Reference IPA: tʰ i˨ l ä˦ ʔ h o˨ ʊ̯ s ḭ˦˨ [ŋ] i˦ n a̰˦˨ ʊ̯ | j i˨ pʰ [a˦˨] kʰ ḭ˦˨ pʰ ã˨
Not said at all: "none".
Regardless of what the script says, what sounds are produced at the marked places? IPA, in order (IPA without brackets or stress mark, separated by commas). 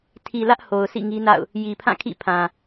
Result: ŋ, ã˦˨